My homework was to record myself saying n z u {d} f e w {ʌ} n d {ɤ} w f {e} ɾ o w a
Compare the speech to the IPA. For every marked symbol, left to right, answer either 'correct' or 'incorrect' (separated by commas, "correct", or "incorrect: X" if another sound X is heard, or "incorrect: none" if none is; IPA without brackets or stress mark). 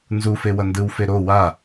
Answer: incorrect: none, correct, incorrect: ɯ, correct